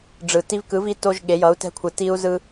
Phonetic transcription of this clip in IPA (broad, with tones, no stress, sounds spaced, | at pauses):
ɖ͡ʐ ɯ˧ t i˥ v k ɯ˧˥ v i˥ t o˥ ʒ ɠ e˧˥ j ʌ˧˥ u̯ t ɛ̤˥ kʷʰ ɯ˧ t i˥ u̯ z ɯ˥